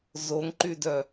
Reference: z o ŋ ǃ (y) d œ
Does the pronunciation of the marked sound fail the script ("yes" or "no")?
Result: no